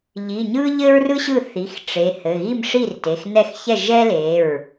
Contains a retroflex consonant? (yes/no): yes